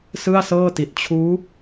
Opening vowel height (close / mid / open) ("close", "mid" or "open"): close